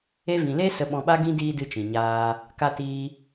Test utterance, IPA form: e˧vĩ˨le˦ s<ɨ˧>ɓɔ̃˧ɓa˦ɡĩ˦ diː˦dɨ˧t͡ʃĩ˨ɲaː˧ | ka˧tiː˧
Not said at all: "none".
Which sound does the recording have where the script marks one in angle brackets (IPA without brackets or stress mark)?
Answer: ə˧